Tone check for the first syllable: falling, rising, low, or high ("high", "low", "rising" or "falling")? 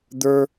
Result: high